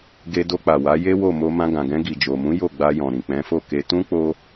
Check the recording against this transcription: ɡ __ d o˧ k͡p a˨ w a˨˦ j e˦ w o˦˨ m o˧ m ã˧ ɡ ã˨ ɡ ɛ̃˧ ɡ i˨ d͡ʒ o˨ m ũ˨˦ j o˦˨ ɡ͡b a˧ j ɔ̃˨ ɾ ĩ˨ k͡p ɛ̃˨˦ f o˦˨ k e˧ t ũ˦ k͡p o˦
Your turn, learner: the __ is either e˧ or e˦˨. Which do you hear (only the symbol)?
e˧